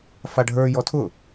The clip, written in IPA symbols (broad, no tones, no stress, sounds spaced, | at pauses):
f a ɖʱ ə˞ j ɔ tʰ ʊ